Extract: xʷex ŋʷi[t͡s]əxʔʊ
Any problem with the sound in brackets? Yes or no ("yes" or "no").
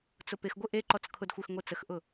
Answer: no